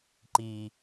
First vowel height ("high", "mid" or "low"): high